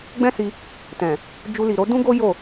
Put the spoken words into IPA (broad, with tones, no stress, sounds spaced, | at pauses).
ɡ͡b ɛ̃˦ s i˧ | t ɛ̃˨ | d͡ʒ u˧ l i˨ ɾ o˨˦ d ũ˦ ɡ o˦ j o˦˨